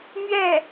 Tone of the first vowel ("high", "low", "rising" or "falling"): falling